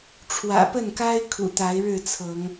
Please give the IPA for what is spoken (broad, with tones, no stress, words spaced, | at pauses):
ʈ͡ʂʰwä̰˨˩pə˥˨n ka˦ɪ̯ kʰṵ˨˩t̪a˨˦ɪ̯ ɻɻ̩˥˨t͡sʰɤ˨˦ŋ